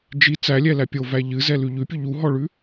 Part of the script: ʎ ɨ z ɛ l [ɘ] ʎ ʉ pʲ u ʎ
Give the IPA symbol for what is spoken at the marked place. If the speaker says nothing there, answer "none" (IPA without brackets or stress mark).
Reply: ʉ